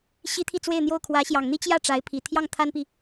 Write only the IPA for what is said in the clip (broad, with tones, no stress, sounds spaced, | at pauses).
ɕ i˥ t̪ʰ i˥˧ t͡s w e˥˧ ɪ̯ n̪ j o˥˩ ʊ̯ kʰ w ä˧˥ ɕ j ɑ˨˩ ŋ n̪ i˥ t͡ɕ j ä˥˩ ʈ͡ʂ a˧˥ ɪ̯ pʰ i˨˩ t̪ʰ j ɑ˥˩ ŋ t̪ʰ a˥ n p i˨